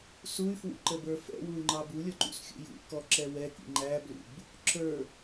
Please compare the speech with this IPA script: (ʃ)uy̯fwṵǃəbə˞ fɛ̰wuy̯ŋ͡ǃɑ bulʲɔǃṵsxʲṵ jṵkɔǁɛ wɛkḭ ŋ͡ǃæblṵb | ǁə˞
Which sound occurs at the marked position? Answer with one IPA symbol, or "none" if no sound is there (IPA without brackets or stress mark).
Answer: s